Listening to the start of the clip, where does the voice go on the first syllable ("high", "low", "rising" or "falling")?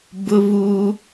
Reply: high